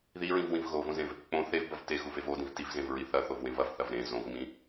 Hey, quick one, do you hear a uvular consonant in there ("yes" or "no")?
no